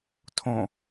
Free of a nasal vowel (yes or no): no